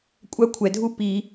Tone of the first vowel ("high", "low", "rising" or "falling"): high